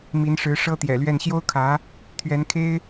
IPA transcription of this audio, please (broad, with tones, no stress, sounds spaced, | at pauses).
m i˧˥ n ʂ ɻ̩˧˥ ʂ ɤ˥ t̪ j ɛ̰˨˩ l ɥ ɛ˥˩ n ɕ j o˥ ʊ̯ kʰ ä˧˥ | t̪ʰ ɥ ɛ˧˥ n kʰ e˥ ɪ̯